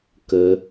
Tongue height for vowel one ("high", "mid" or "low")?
mid